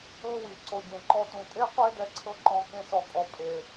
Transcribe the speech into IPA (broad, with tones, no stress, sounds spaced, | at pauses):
ɤ˦ w i˨ ǀ o˨ ɟ ẽ˨ ǃ ɔ˧ t ũ˨ tʼ e˦ qʷ e˦ d ɛ˦ ǀʰ ɤ˦ ǃ ɔ̃˧ k ẽ˦ s ɔ˧ kʼ ɔ˨˦ pʼ e˨